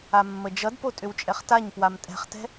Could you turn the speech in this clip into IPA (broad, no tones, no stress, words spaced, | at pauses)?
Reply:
amːəd͡ʒʌdpo tʼʏwt͡ʃʼɛχtaɲ pwamtʼɛ̤χtɛ̤